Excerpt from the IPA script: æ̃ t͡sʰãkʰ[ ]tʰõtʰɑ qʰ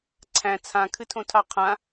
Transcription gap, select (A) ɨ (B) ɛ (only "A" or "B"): A